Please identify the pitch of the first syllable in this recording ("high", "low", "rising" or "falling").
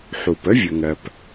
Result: low